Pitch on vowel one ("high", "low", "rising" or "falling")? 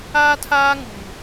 high